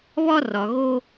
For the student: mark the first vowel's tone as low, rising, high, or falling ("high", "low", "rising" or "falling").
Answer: high